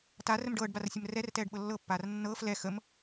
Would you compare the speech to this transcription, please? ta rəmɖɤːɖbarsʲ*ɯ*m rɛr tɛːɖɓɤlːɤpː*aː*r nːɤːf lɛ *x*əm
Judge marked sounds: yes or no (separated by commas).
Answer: no, yes, yes